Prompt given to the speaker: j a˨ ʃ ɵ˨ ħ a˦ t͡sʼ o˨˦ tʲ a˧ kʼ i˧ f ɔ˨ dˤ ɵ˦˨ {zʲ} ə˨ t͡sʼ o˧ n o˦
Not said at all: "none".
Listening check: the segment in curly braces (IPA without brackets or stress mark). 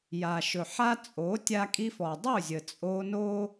zʲ